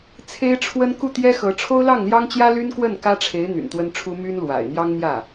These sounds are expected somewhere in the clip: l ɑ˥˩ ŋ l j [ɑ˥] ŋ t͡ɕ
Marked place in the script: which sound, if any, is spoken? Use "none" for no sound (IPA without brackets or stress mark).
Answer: ɑ˥